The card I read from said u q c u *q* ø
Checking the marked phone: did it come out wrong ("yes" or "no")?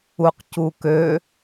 yes